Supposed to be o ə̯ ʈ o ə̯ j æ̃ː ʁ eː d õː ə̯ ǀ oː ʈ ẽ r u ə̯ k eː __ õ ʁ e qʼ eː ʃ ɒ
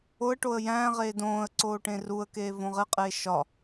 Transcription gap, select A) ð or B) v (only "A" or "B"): B